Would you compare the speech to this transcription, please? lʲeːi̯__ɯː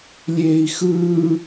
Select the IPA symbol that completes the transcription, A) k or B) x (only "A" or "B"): B